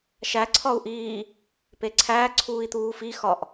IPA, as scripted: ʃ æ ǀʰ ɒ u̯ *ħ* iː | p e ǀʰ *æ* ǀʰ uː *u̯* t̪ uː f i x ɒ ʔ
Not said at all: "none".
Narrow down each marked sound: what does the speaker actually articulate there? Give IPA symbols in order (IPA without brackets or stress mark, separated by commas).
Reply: ʔ, æː, i̯